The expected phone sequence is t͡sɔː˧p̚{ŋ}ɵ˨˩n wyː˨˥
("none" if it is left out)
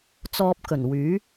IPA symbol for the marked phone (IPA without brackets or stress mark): k